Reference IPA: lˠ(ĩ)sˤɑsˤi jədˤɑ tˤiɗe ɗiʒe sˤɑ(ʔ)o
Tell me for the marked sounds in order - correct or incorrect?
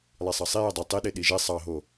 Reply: incorrect: i, incorrect: ɦ

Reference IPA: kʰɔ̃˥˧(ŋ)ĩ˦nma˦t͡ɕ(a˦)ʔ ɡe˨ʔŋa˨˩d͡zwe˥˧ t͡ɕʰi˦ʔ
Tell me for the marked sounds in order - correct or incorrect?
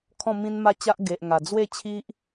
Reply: incorrect: m, correct

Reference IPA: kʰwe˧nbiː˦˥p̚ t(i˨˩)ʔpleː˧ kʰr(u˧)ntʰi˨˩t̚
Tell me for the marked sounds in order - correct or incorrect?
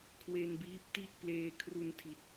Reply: incorrect: i˥˩, correct

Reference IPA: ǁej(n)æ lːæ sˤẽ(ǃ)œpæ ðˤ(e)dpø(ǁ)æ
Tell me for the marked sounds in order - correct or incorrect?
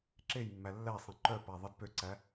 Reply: incorrect: mː, correct, correct, incorrect: ǀ

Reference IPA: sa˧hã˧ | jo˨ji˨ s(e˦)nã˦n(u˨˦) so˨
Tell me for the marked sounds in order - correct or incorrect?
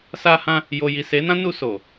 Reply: incorrect: e˨˦, incorrect: u˧

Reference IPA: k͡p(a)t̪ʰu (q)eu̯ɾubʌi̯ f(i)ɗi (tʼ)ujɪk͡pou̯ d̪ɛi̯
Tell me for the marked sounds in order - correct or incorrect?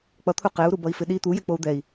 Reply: incorrect: ʌ, correct, incorrect: ɪ, incorrect: t̪

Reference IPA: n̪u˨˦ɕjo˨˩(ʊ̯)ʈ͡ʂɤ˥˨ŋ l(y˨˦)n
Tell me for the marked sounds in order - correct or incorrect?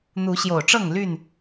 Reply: correct, incorrect: y˥˨

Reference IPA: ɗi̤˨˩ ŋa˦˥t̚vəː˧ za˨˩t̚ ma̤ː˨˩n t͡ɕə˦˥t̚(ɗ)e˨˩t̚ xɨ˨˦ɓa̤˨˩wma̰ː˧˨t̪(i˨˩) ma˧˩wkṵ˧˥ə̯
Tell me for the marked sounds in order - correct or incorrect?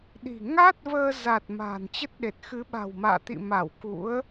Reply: correct, incorrect: ḭ˧˨

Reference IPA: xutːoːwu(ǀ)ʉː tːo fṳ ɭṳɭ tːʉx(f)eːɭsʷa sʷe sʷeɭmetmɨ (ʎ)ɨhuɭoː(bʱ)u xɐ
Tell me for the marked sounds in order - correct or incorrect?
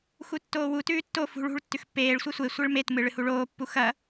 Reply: incorrect: t, incorrect: pː, incorrect: ɭ, incorrect: pː

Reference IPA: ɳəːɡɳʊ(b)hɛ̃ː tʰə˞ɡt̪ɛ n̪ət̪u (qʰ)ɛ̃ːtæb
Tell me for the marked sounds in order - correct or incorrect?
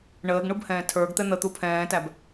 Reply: correct, incorrect: pʰ

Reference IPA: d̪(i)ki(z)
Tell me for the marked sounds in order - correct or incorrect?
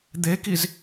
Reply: incorrect: e, correct

